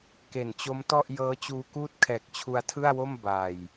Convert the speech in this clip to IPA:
k e˨˩ n t͡ɕ o˦˥ m t ɔ˥˩ ʔ j ɤː˦˥ t͡ɕ uː˧ k uː˥˩ t̚ kʰ ɛː˨˩ k̚ t͡ɕʰ u˧ a̯ tʰ ɯ˥˩ a̯ w o˥˩ m b a˨˩ j

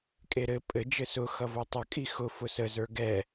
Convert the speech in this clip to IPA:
kʼ e ɾ ɘ pʼ ɘ d͡ʒ ɘ s ʊ x ʌ v o tˤ ə kʼ i x ʊ f ʊ s ə z ə˞ ɡ ɛ

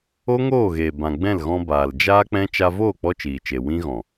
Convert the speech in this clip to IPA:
o˦ ŋ oː˦˨ ɣ eː˨ b ã˨ ɡ͡b ɛ̃˦˨ l ɣ ɔ̃˧ b aː˨ l d͡ʒ aː˦ k͡p ɛ̃˦ t͡ʃ a˧ v oː˦˨ k͡p ɔ˧ t͡ʃ iː˨ t͡ʃ e˨ w ĩ˦ ɣ ɔ̃˨

